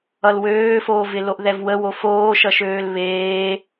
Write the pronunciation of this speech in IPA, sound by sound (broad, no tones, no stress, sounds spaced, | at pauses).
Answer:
ʌ l w øː f oː v ɪ l o ʔ ð ɛ v w ə w o f oː ʃ ʌ ʃ øː l β eː